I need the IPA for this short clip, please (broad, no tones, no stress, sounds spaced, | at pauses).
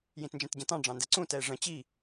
j ĩ t n d͡ʒ ɛ̃ t ɟ ə̃ t ɑ̃ ɖ͡ʐ ɑ̃ n d ɛ ǀ ũ t ɛ e̯ ʐ ə̃ t͡ɕ i